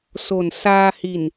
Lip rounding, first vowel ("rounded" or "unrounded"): rounded